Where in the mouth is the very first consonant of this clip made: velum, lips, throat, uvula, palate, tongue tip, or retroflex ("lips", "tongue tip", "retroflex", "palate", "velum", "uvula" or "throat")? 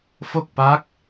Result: lips